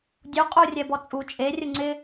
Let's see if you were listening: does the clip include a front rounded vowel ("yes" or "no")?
no